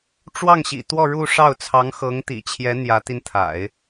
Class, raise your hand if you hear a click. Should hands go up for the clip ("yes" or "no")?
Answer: no